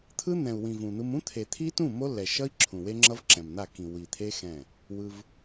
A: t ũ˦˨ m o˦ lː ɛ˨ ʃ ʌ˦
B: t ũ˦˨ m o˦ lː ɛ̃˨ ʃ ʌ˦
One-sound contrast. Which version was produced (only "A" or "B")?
A